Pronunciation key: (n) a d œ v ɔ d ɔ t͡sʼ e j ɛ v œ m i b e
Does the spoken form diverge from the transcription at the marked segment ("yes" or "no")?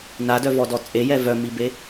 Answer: no